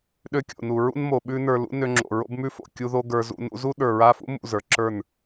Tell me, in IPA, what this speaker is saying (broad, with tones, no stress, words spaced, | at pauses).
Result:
ɗø˧kʲo̰˨nu˨ ɹṵ˦nmo˨ɓʉ˦nə˞˧ lṵ˦nø˧ŋ͡ǁo̰˨ ɹo̰˦bmʉ˦fo̰˨ kʲu˧ðo˧ ɡə˞˦zṵ˦ nṵ˧zu˦ ɗə˞˨ɹa˧fṵ˦ mṵ˦˨zə˞˨ǁə˞˦˨n